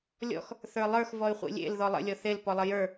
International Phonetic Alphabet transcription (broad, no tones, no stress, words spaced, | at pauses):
lʲɔ̰x | θə˞lˠə˞x vɔy̯χʷḭlʲḛl ðɔlˠə̰ lʲɔθel pɔlˠəjə˞